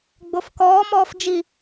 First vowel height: mid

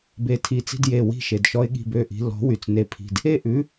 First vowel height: mid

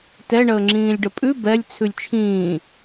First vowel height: mid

